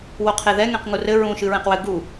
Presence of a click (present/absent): absent